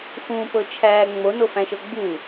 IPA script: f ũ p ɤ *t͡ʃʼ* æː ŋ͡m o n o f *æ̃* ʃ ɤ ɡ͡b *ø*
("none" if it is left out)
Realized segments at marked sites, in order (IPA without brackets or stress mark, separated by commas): t͡ʃʰ, æ̃, u